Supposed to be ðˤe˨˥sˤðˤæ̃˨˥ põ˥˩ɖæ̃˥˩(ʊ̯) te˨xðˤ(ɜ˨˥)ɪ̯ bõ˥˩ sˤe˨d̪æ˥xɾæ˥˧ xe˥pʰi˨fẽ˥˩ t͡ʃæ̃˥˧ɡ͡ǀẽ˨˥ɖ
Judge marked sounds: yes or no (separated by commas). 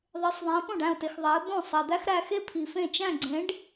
yes, no